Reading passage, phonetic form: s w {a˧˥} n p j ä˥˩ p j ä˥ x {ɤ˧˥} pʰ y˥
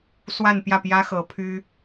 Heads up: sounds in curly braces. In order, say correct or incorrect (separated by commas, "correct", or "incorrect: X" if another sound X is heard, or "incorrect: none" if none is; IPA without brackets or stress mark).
incorrect: a˥˧, correct